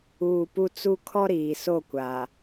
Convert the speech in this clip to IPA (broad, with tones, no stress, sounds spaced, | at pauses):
uː˨ p u˨ t͡s u˦ kʰ ɔ˦ ɾ iː˨ s o˦˨ kʷ a˨